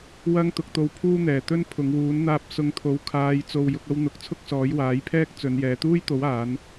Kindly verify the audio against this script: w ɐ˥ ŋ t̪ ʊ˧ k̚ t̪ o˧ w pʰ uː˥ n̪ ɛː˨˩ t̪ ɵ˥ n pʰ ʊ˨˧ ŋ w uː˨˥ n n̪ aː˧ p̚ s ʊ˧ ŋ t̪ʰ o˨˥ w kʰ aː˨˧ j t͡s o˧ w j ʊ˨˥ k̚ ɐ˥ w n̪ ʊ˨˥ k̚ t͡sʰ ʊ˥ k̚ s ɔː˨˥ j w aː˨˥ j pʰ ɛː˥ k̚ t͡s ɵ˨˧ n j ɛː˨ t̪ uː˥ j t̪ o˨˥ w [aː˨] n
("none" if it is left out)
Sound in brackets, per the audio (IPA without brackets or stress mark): aː˨˧